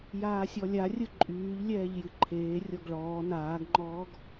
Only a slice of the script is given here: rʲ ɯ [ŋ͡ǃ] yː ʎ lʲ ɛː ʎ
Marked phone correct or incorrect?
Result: incorrect